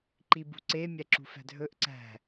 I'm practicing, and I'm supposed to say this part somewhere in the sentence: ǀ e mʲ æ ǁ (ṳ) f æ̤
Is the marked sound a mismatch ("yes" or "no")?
no